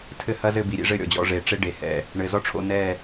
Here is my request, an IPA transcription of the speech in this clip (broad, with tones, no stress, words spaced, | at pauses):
tʰɘ˦hɐ˦zɘ˦˨bi˨ ɾʲḛ˦ʐɘ˦˨ ɾʲɔ̰˨d͡ʑɔ̰˦˨ʐeː˨ ʈ͡ʂe˦ɖe˨ hɛ̰˨ | ɳɘ˨ zɔ˦ʈ͡ʂʰo̰˦˨nɛː˦˨